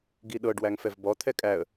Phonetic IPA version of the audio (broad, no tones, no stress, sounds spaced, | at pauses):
ɡ i ɗ ɤ ɖ w æ ŋ f ɛ v b ɔ t̪ʰ ɛ kʼ æ ə̯